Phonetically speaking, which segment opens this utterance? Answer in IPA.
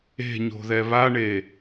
e̤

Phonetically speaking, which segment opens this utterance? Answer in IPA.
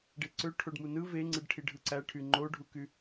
ɖ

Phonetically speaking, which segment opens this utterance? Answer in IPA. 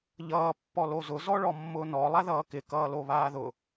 ʎ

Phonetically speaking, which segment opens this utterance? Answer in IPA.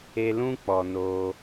e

